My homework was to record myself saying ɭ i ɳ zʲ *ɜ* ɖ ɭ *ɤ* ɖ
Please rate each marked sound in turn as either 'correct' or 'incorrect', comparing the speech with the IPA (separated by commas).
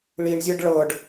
correct, correct